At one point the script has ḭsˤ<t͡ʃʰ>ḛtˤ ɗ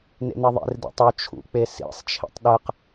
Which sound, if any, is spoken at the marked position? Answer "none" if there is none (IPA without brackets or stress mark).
t͡ʃʰ